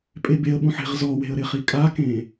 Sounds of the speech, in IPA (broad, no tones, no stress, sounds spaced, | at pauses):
pʼ e b e ə̯ ɓ ũ ħ e̤ ʁ z ɔ w e̤ ə̯ ɾ ɪ χ i kʼ a k ẽ